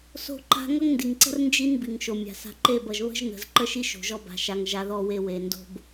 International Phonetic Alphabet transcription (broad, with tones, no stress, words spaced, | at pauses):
so̤˦ǃa̤˦ ŋʌ˦ŋndi˨ŋǀə̤˦r nd͡ʒi˦n bi˨ŋʃo˨mʲa̤˨ sa̤˨ǃe˦˨bʌ˨ʒ βə̤˦ʒnə̤˨z ǃə˦ʃi˦ ʃo̤˨ʒɔ˦ba̤˨ ʃa˨ŋ ʒa˦ðɔ˦we˦ we˨ndo̤˦b